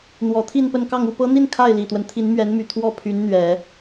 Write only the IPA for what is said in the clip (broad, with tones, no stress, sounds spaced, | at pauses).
n̪ w ɔ˧˥ t̪ʰ i˥˧ n p ə˥˧ n k ɑ˥˧ ŋ u˥˩ p ɤ˥ n̪ i˥˧ n kʰ a˥˩ ɪ̯ l i˨˩ t̪ w ə˦ n t̪ʰ i˧˥ n m ɥ ɛ˧˥ n m y˨˩ t̪ʰ w ɔ˥˩ pʰ y˧˥ n n̪ ɥ ɛ˨˩˦